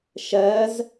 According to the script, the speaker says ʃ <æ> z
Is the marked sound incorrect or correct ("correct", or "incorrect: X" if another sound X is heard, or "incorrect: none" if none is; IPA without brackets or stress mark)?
incorrect: ɜ